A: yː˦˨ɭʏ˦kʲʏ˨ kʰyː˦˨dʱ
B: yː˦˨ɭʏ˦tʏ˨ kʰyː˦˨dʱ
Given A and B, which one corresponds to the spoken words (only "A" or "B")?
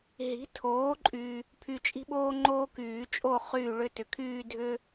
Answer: B